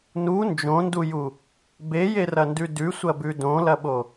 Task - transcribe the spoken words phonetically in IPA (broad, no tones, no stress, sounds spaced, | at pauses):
n u n d͡ʒ õ n d u j u | b e j e r ɐ n d ʉ d ʉ sʷ ɐ b ʉ d õ l ɐ ɓ o